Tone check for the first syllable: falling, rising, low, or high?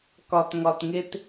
low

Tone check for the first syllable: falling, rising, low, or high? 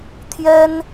high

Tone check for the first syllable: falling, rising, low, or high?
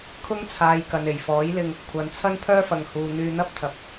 high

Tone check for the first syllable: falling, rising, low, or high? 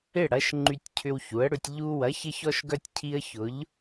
falling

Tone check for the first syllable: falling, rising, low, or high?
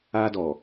high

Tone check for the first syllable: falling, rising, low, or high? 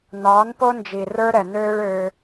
rising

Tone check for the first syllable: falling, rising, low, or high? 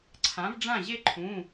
rising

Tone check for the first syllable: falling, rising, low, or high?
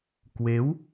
rising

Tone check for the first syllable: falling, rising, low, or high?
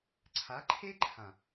rising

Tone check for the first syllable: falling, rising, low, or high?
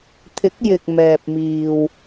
rising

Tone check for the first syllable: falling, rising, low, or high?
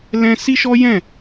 high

